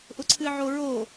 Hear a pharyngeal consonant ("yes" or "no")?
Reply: yes